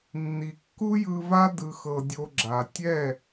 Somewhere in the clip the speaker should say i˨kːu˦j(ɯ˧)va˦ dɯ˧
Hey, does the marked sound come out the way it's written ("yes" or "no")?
yes